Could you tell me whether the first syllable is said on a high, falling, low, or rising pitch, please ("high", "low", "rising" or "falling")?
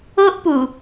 high